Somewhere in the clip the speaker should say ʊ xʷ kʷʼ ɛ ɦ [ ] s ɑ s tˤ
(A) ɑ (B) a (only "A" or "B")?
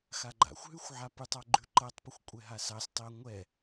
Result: B